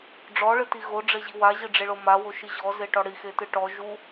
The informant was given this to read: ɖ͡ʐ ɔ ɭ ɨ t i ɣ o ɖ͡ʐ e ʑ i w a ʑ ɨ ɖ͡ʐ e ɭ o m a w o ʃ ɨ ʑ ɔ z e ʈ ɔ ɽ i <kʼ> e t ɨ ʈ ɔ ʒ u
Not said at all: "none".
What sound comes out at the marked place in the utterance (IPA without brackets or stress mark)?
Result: x